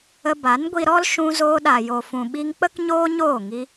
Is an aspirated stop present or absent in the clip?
absent